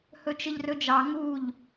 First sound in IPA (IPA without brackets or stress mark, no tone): h